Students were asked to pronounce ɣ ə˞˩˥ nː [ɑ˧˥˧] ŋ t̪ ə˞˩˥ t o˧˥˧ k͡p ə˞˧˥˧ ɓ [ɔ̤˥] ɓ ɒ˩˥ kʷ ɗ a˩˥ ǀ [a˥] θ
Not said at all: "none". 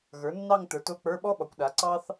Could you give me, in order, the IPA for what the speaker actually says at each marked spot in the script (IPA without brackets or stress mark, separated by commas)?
ɑ˥˧, ɔ˥, ɑ˥